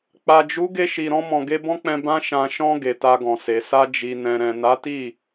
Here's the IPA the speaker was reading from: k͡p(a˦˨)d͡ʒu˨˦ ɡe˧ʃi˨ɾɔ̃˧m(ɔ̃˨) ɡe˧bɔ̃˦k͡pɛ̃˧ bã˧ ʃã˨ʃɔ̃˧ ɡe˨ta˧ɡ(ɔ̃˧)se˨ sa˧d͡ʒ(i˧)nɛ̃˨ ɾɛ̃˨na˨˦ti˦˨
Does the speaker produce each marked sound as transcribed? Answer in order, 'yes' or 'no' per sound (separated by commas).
no, yes, no, no